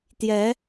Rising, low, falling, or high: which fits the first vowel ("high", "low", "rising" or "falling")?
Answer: rising